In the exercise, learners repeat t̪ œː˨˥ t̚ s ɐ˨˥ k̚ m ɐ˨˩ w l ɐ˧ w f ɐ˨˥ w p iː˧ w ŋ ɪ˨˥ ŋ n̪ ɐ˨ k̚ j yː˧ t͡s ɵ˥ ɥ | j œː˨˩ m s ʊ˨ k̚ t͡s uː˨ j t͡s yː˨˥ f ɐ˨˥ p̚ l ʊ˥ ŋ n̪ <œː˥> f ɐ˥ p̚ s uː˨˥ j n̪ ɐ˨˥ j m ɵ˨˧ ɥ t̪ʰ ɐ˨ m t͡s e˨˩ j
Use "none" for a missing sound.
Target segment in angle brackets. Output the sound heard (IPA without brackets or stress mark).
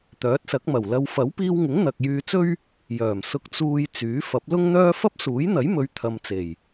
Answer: œː˥